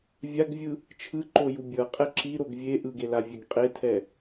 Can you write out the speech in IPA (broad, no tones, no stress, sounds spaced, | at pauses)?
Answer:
vʲ a ɡ vʲ ɯ | t͡ʃʰ ɯ ǃ o j u bʲ ʌ qʼ ɛ ǁ i ɾ o ɡ vʲ e ʔ ɯ ɡ e l a vʲ ɛ ɡ qʼ e tʰ ɛ